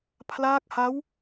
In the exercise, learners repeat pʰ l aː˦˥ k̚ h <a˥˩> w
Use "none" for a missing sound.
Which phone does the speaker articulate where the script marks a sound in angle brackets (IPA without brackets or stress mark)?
a˦˥